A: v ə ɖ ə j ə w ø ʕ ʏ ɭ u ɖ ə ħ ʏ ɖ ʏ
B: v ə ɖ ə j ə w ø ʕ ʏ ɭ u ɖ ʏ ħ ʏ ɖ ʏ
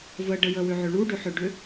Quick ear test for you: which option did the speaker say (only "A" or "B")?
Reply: B